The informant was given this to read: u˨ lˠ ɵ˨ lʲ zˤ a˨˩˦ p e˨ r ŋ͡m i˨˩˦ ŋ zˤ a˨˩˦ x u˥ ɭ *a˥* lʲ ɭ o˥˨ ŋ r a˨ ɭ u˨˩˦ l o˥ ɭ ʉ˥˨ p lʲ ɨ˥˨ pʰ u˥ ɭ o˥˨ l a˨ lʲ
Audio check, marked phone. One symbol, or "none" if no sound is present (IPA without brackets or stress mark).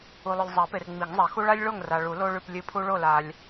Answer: a˥